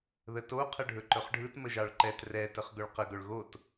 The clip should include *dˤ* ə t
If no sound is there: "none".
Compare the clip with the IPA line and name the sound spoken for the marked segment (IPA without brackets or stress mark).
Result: ð